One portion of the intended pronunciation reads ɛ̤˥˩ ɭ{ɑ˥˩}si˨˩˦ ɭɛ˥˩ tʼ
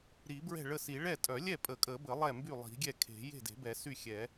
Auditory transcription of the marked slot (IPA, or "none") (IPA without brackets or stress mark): ə˥˩